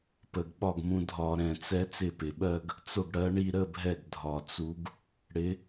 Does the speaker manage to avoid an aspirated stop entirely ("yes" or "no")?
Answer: yes